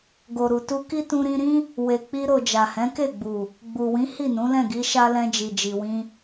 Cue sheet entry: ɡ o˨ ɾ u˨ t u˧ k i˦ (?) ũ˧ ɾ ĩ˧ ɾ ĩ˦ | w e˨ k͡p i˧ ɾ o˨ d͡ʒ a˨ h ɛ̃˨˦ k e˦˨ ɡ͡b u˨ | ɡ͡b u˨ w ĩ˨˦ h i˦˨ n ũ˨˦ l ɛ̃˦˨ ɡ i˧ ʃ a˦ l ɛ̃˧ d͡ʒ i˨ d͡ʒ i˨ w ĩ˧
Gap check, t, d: t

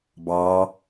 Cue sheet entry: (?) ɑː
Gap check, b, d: b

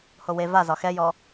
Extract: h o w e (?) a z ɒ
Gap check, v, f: v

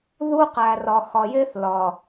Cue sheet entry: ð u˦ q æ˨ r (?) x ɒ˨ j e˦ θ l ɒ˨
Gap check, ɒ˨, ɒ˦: ɒ˨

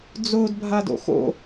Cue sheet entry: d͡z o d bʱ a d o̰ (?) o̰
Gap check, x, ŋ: x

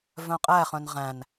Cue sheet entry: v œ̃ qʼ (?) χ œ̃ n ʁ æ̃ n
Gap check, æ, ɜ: æ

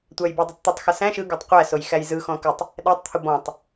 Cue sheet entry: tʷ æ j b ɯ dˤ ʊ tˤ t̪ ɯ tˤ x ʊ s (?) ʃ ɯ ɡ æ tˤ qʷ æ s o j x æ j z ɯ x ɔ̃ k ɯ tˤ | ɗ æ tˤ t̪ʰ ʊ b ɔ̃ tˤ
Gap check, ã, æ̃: æ̃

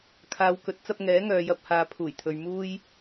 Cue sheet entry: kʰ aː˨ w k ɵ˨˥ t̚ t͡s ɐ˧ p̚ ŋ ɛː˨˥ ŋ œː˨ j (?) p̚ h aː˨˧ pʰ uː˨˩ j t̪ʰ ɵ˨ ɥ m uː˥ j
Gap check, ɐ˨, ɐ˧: ɐ˧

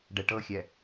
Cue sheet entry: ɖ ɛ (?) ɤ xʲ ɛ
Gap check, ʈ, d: ʈ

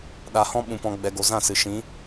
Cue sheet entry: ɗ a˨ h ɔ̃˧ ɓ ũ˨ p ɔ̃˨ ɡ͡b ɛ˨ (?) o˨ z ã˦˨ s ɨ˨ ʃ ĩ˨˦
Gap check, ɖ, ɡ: ɡ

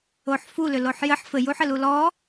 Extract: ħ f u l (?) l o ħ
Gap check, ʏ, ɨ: ʏ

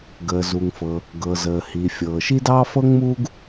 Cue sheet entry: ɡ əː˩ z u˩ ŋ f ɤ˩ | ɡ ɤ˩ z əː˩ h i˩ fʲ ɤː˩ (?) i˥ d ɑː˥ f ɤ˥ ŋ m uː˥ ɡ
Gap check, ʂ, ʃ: ʃ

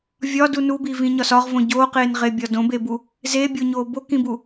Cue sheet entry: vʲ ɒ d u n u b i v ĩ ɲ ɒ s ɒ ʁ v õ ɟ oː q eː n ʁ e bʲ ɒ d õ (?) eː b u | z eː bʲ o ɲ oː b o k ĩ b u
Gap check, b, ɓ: b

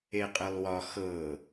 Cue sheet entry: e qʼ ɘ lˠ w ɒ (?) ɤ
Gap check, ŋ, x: x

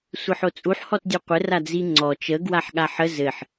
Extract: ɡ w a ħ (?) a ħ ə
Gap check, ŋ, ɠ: ɠ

